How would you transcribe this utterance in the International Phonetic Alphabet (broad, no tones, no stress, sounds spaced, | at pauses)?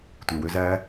tʷ e w ø z æ